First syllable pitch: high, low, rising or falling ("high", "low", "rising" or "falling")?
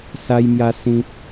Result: high